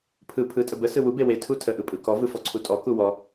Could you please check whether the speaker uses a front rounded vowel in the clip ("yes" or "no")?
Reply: no